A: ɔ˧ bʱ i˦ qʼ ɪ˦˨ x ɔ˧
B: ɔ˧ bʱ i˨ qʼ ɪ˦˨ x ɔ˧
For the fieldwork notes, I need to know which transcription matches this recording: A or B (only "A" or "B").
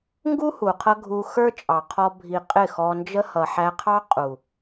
B